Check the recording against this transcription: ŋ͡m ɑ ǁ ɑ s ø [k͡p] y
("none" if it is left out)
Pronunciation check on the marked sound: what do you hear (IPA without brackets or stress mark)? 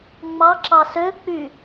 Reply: k͡p